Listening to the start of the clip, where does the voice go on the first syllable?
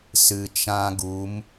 low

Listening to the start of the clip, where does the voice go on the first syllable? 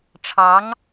rising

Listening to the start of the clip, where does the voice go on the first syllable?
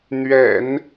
low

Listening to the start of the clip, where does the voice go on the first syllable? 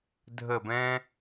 falling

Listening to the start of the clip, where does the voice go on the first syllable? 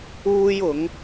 high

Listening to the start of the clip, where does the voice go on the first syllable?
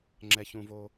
low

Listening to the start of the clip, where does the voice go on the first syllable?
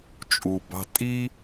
low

